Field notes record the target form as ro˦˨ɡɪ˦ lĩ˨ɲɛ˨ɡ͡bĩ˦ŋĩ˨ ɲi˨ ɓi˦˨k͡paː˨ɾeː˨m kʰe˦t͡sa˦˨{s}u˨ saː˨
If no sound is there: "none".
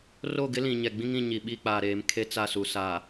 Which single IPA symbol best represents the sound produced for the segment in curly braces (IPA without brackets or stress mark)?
s